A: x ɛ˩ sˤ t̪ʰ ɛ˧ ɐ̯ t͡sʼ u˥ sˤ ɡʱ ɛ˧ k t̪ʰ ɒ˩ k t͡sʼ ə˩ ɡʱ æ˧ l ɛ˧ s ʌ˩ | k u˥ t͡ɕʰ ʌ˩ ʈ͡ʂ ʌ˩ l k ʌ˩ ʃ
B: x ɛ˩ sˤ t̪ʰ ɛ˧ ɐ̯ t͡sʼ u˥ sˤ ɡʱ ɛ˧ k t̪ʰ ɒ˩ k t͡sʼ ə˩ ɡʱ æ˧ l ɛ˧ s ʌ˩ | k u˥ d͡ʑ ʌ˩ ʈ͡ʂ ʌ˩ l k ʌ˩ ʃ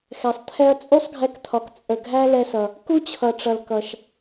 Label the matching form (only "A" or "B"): A